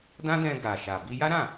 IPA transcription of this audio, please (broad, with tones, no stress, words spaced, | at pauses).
dã˦dɛ̃˧ɡa˨ʃa˨ bi˧ja˦ɾã˦˨